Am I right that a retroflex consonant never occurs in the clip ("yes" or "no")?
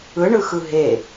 no